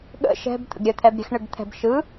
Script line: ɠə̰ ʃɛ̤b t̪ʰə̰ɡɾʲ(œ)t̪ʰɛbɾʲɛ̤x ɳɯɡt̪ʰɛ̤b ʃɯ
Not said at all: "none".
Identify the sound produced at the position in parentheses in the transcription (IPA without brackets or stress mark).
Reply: œ